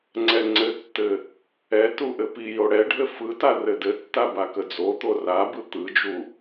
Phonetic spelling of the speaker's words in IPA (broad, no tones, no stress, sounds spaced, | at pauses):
ŋ͡ǀ ɛ ŋ͡ǀ ɘ tː ɘ | ɛ t u ʔ ɘ p i j o ɽ ɛ ɖʱ ɘ f ɯ t a r ɘ d ɘ tː a b a k ə d͡z o t̪ o r a b ɯ t̪ ɯ d͡ʒ u